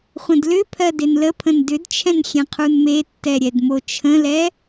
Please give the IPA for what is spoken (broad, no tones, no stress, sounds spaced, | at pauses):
χʷ ə̃ d l ʏ pʰ ɜ d e n l ə pʰ ə̃ n d ʏ d t͡ʃʰ ɛ̃ n xʲ ɛ̃ qʰ u n m e tː ɛ ɾʲ ɛ d m o t͡ʃʰ ə̃ l ɛ